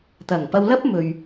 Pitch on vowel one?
low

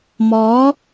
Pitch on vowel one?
rising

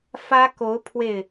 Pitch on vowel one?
high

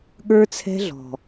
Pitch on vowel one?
high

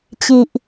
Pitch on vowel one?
low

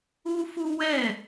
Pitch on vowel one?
high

